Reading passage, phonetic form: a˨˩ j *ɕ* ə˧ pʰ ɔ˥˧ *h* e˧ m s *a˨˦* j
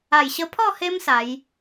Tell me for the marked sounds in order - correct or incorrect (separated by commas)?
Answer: correct, correct, correct